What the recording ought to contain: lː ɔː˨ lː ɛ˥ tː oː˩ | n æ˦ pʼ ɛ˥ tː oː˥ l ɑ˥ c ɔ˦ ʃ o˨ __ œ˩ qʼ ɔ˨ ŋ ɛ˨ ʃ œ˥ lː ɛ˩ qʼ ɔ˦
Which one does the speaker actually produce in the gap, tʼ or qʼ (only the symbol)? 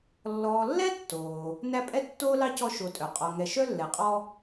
tʼ